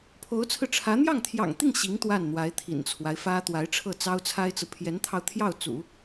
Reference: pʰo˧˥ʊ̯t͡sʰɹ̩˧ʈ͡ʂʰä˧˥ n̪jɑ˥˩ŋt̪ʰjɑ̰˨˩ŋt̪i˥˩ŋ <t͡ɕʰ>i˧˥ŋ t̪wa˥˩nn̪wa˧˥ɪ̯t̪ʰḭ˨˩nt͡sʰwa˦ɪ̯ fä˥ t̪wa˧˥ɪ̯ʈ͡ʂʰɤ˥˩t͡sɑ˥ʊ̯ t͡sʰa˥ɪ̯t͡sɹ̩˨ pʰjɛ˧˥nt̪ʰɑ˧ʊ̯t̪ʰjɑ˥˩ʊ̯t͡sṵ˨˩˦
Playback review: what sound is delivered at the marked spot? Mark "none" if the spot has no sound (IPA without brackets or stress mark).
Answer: ɕ